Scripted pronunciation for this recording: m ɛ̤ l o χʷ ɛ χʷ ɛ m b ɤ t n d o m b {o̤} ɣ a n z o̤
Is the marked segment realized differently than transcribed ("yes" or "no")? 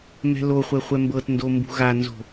yes